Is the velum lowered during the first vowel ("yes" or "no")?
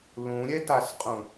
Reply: yes